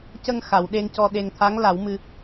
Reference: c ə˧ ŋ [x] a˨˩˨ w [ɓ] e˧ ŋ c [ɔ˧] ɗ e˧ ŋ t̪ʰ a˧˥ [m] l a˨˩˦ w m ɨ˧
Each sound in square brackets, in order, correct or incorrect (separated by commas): correct, incorrect, correct, incorrect